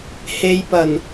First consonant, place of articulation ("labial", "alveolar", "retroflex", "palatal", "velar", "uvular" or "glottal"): glottal